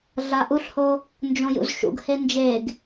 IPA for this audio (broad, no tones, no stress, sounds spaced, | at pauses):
ɮ a ʔ u ɬ h o | n d͡ʒ õ j ṵ z ʃ ṵ ɡ h e n d͡ʒ e ɡ